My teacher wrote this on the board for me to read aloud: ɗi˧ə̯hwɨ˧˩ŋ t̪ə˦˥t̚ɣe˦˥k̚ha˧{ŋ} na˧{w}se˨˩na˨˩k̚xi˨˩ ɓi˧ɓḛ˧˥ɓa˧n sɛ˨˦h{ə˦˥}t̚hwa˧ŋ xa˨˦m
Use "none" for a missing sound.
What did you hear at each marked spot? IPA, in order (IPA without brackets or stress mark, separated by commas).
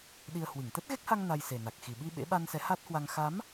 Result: ŋ, j, a˦˥